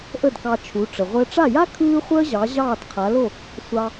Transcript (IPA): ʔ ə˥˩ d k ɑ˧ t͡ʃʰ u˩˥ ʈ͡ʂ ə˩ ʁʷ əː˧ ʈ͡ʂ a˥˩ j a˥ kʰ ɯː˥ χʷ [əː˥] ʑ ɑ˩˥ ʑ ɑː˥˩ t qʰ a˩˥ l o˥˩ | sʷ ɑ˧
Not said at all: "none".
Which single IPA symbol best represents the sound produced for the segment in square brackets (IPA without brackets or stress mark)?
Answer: əː˥